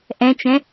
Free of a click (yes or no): yes